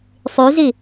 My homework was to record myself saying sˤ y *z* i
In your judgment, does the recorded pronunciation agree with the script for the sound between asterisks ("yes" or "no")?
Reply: yes